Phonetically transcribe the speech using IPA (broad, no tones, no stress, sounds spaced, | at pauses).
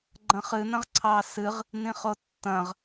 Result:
ɡ͡ǃ ɐ̃ χ ɨ n ɐ̃ ʁ ǀʰ ɑ s ɨ ʁ | n ĩ χ o tː ɐ̃ ʁ